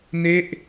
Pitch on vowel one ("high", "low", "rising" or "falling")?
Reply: falling